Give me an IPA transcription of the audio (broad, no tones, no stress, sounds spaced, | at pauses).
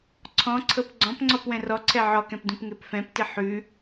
ǀʰ ɔ̃ ǀʰ ɤ p ɡ͡ǀ ɔ̃ p ŋ͡ǀ ɔ p w ɛ̃ r ɔ ǀʰ ɛ ʕ ɔ k ɛ̃ p d ũ p ŋ e p f ɛ̃ p t ɪ ħ ʉ